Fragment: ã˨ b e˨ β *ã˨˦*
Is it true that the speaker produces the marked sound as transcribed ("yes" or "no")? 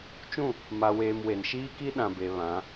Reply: yes